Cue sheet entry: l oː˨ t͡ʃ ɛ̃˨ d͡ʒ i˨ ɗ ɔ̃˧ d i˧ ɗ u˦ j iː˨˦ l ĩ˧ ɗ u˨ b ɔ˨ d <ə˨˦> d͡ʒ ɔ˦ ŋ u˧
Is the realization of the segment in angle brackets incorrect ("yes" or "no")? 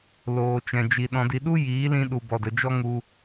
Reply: yes